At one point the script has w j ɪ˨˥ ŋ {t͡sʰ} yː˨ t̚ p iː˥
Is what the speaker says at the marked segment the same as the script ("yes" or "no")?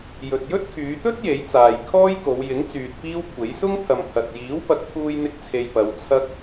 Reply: no